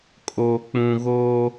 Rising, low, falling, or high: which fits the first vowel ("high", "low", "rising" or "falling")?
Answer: low